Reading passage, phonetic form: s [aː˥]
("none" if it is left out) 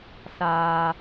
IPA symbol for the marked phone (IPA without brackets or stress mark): aː˨